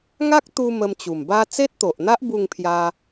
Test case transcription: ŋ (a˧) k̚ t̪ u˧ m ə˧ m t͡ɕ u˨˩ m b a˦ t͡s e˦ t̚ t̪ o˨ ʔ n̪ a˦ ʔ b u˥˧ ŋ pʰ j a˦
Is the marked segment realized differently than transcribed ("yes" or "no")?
yes